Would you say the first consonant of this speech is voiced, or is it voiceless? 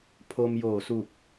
voiceless